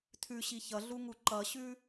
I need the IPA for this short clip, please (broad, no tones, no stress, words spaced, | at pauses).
tʰʉɕi çʌɮuŋu ǃʌɕʉ